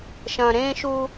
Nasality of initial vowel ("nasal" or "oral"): nasal